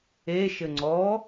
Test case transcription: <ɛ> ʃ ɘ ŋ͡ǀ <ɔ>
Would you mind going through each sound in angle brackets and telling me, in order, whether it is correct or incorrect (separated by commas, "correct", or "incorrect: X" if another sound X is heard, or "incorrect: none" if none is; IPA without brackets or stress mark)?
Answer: incorrect: e, correct